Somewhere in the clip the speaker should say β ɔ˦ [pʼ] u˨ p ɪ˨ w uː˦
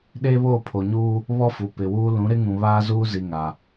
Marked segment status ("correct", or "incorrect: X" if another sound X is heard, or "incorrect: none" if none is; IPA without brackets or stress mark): incorrect: f